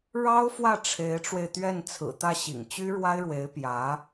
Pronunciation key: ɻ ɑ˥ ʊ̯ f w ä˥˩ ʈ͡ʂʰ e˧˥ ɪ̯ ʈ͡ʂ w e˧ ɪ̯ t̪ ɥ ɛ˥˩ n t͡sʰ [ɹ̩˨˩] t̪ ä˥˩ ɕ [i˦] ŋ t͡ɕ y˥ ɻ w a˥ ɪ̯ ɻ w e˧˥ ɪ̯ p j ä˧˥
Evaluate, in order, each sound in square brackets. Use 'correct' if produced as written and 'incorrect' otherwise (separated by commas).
correct, incorrect